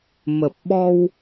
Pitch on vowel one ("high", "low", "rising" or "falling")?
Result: low